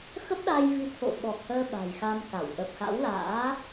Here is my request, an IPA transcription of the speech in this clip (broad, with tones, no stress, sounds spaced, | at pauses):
x ə˦˥ p̚ ɗ a˧ j v i˨˦ t̪ʰ o̰˧˨ ɓ ɔ˨˩ k̚ h əː˧ ɓ a̤˨˩ j x a˧ m k a˧˩ w ʔ ə˨˩ p̚ x a̰˧˥ w l a̰ː˧˥